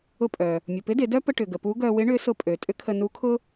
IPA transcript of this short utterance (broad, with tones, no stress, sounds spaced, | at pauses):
ʊ˧ pʼ œ˩ | mʲ ʊ˩ p ɪ˧˥ d ɪ˩˧ d œ˥ p ə˧ ʈ ʏ˩ ɡ ə˩ p u˧˥ ɡ œ˧ w ɪ˧˥ ɳ ʏ˧˥ s ʊ˧ pʼ ø˩ tʼ ʏ˧˥ kʰ ə˧ n u˧˥ kʰ ʊ˥